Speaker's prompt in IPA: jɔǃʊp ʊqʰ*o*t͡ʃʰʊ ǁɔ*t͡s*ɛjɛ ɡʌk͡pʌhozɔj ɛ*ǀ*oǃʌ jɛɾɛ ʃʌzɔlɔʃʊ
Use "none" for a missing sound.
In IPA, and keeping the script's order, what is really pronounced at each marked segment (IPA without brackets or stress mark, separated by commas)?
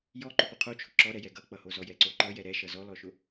o, ɾ, ǀ